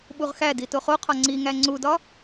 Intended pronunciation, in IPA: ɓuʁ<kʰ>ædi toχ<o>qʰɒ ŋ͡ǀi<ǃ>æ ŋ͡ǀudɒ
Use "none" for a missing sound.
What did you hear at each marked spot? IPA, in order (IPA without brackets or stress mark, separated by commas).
x, o, ŋ